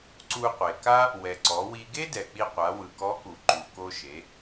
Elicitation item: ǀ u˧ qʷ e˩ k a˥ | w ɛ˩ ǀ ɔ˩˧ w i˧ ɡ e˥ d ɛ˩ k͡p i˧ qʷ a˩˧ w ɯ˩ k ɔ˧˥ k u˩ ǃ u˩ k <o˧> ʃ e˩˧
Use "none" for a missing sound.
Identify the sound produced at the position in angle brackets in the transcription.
o˧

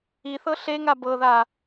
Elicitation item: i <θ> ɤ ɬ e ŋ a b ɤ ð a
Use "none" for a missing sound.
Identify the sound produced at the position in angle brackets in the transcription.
θ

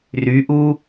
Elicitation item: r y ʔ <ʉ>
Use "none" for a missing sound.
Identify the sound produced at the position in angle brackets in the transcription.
u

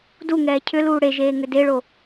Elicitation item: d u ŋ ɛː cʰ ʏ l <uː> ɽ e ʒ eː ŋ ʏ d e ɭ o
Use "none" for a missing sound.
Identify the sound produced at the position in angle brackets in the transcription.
uː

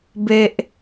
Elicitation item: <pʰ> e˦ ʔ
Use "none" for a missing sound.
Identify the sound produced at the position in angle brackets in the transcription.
b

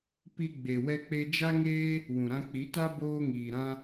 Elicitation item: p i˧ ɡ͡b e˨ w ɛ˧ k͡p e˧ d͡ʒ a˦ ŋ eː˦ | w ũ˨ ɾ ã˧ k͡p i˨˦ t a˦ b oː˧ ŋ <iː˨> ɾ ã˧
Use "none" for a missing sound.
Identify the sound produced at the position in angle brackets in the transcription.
iː˨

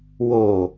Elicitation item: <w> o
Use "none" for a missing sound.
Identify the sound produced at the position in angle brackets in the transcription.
w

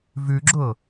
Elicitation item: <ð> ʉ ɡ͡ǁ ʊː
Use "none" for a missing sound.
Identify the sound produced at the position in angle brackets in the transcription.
v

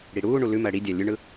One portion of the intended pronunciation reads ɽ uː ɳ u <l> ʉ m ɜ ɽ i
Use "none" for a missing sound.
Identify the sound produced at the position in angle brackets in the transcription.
l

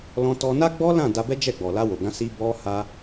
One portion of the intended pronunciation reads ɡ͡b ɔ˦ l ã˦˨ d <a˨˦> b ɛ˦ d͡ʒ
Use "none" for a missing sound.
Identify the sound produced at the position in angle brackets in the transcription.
a˧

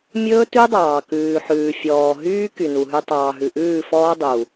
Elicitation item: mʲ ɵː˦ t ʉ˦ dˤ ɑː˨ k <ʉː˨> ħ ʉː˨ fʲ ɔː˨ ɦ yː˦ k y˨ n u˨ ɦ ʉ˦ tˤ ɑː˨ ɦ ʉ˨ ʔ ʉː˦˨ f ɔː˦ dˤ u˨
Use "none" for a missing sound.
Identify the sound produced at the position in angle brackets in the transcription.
ʉː˨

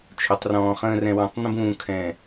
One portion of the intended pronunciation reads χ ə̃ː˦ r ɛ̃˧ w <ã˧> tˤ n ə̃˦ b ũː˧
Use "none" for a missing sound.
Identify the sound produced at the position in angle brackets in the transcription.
ã˧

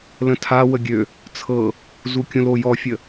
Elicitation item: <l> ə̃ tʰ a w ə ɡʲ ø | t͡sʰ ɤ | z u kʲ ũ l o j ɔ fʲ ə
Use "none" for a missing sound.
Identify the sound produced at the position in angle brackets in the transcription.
l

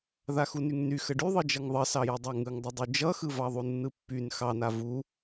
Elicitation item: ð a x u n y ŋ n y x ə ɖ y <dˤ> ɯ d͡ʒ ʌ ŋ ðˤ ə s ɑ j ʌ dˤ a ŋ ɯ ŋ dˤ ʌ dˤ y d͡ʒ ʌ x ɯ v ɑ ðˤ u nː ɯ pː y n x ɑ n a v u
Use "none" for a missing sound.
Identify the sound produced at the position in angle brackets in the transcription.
ðˤ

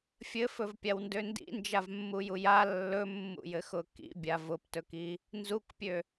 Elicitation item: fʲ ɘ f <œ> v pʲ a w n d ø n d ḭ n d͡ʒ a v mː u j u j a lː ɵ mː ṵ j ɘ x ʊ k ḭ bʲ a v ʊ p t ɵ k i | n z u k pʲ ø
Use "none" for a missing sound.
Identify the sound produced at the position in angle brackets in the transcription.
ɵ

